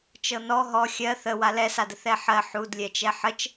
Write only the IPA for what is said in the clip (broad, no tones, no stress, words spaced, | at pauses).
t͡ʃɤnɔ ɦɔ xʲɜ θə walɛsadə θɛħɜħ udlʲɛt͡ʃɛ ħət͡ʃ